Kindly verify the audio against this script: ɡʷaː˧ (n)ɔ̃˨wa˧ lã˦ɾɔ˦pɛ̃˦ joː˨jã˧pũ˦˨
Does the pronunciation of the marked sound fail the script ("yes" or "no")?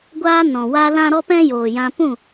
no